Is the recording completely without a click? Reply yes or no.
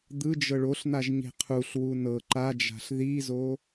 no